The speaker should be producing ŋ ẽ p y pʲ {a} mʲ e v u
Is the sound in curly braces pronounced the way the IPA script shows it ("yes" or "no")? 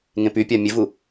yes